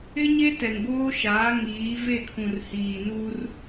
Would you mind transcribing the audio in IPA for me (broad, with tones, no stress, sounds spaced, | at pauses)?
ɪ˦ ɲ e˦ t ɛ˨ ŋ ɡ oː˦ ʃ aː˨˦ ŋ iː˨˦ v e˦˨ kʰ ũ˨ r h iː˨ n u˦ r